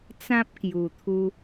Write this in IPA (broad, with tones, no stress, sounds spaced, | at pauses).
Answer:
t͡s ã˦ p̚ k j u˨˩ t̪ʰ u˧